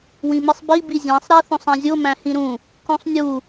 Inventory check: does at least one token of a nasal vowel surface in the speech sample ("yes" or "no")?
yes